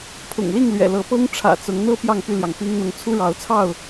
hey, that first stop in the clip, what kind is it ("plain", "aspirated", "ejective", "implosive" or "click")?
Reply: aspirated